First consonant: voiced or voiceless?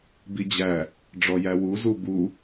voiced